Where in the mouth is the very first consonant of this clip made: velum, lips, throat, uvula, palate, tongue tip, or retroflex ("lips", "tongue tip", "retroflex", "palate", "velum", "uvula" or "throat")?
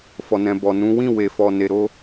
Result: lips